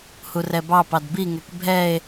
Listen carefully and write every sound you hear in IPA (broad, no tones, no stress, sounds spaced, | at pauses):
h u r ɛ b ɑ p ɑ d b i ŋ ɛ k bʱ ɛ e̯